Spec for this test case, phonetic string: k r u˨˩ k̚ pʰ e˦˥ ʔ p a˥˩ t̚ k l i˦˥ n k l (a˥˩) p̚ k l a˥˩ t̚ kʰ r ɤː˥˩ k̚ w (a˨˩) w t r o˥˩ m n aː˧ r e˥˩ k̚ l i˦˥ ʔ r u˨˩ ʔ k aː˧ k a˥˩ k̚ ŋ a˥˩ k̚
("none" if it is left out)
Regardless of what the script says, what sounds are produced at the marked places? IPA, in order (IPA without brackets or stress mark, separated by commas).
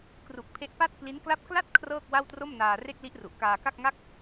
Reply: a˥˩, a˥˩